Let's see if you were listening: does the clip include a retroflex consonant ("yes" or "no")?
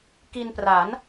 no